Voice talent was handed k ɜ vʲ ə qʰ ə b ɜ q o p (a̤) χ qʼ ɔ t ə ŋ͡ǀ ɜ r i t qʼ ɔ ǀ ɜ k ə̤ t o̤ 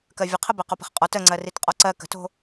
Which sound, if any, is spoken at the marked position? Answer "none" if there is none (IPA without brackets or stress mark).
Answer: ə̤